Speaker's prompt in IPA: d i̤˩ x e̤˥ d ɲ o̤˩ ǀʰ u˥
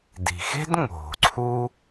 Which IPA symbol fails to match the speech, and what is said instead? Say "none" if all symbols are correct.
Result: ɲ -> ŋ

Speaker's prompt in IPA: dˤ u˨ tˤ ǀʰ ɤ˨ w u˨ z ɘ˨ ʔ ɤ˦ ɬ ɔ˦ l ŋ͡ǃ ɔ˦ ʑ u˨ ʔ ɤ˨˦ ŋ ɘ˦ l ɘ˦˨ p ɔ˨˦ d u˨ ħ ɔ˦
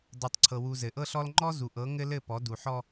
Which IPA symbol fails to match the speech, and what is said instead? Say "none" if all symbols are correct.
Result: ʑ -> z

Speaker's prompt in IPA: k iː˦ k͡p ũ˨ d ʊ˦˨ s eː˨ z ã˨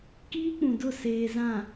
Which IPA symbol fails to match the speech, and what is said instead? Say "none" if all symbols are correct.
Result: none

